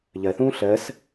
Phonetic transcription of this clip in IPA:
ʎ ɜ θ ũː ɬ ɜ s

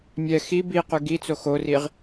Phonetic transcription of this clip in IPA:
mʲ ɛ x i b i q ʉ ɡ i t͡s o x o r i ʁ

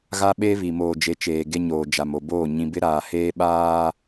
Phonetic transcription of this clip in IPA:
ɣ a˦ ɓ e˦ β i˨ m oː˨ d͡ʒ e˨˦ t͡ʃ eː˨ ɡ e˦ ɲ oː˨ d͡ʒ a˨ m o˨ b oː˦˨ ɲ ĩ˨ b ɪ˦ ɾ aː˨ h eː˦ ɓ aː˦

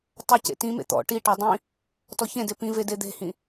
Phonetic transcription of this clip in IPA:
tˤ ɐ c ḛ t ĩ m ḛ t̪ ɔ̰ ʈ i ʈ ɔ dˤ ĩ | t ɔ ç ẽ d e p ĩ v e d e d̪ e̤ h ĩ

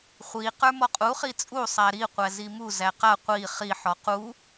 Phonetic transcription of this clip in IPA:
χʷ i q ə˞ m ɔ qʼ u χ i t͡sʼ u sˤ æ ɾ i qʷ æ z i m u z æ q a qʷ i χ i ħ ɔ q u

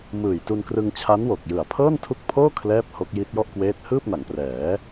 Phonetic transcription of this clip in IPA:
m ɯː˨˩ j t u˧ n k r ɯ˧ ŋ t͡ɕʰ a˦˥ n w o˨˩ k̚ j ɯ˨˩ a̯ pʰ ɤː˥˩ n tʰ u˦˥ k̚ pʰ oː˥˩ kʰ l ɛː˥˩ p̚ h o˦˥ k̚ j i˦˥ t̚ j ɔ˥˩ ʔ k w eː˦˥ t̚ h ɯː˥˩ p̚ n a˩˦ ŋ p r ɛː˩˦

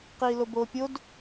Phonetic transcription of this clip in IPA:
q iː l o b oː pʲ o d

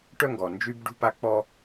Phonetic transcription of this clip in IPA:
ʈ œ˦ ŋ ɡ ɔ˨ n d͡ʒ y˦ b ɖ ṳ˦ p a˦ k͡p ɔ˦

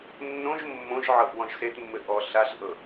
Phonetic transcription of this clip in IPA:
nː õ ʒ mː õ ʒ ʕ ɤ ʔ w ɔ̃ ʒ s e t mː ɘ ʔ ɔ ɬ a ɬ ʔ ɤ

